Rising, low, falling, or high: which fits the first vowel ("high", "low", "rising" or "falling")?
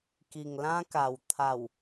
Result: low